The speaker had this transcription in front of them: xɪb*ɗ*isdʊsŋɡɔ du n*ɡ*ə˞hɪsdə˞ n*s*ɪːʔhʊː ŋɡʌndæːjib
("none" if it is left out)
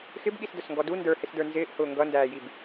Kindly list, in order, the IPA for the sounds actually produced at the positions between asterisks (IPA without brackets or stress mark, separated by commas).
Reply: ɠ, d, z